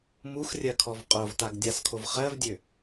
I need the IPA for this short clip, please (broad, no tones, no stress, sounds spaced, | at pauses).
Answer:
m u x rʲ ɜ kʰ ɔ v qʼ o v t a ɡ dʲ a s kʰ o v χ ɜ v dʲ ø